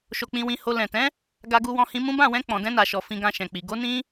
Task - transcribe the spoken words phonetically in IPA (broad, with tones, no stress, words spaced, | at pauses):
ʃo˧k͡pĩ˧wĩ˧ho˧ lɛ̃˨ tɛ̃˨˦ | ɡa˧ɡu˧ wɔ̃˧hĩ˧mũ˦ bã˦˨wɛ̃˧ k͡pɔ̃˨dɛ̃˧na˨ʃɔ˨ fĩ˧ɡã˧ʃɛ̃˨k͡pi˨ ɡo˨˦nĩ˧